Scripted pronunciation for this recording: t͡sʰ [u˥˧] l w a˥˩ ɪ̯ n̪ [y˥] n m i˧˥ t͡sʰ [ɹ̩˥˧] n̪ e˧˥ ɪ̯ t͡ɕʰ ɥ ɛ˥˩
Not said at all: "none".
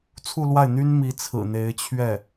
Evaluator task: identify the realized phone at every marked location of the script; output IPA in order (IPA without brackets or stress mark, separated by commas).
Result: u˥˧, y˥, ɹ̩˨˩